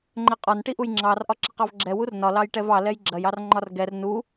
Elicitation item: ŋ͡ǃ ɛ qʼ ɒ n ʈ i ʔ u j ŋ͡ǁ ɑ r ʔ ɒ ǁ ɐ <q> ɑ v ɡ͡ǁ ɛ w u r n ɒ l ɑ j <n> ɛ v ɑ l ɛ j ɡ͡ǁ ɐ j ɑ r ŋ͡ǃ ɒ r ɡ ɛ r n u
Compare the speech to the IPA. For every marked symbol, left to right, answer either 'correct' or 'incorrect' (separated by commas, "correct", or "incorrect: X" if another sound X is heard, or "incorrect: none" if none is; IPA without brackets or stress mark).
correct, incorrect: ʈ